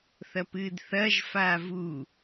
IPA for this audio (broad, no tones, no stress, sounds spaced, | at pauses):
θ ɐ p ɨː d θ ɐː ʒ f aː v u